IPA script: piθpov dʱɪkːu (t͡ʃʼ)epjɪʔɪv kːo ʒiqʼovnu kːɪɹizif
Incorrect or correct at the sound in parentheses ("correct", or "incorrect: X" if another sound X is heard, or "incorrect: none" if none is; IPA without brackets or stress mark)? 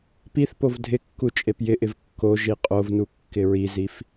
correct